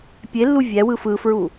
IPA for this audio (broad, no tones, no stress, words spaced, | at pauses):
pʲelːu vʲæwɯ fɯfɹu